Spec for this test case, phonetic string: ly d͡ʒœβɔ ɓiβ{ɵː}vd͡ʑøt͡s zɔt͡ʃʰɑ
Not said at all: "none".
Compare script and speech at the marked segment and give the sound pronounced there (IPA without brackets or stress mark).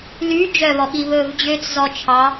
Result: ɵː